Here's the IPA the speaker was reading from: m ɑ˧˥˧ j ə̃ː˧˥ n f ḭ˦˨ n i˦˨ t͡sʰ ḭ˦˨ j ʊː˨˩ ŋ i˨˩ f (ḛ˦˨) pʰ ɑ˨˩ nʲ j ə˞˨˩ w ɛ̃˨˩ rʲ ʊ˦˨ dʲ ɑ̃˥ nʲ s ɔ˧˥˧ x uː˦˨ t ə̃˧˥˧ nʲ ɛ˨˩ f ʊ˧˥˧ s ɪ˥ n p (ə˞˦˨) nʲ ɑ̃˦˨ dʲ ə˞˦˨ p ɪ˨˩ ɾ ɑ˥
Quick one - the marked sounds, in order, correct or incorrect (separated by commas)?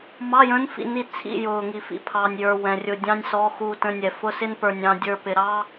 incorrect, incorrect